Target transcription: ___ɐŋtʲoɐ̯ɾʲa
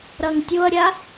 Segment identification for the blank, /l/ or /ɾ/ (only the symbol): ɾ